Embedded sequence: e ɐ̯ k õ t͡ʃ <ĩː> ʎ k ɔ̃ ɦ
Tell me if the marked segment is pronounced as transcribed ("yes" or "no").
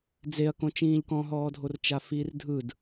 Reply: yes